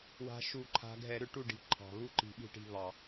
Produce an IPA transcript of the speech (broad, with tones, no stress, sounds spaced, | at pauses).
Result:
w a̤˨˦ ʃ u˧˩˧ ǃʰ a̤˨˦ ɡʱ ɛ˧˩˧ ɾ ʏ˧˩˧ ʈ u˥˩ ɖ i̤˨˦ ǃʰ ɑ̤˩ β u˥˩ ǃ i̤˧˩˧ ɓ i̤˥˩ ʈ i̤˥˩ β ɑ˧˩˧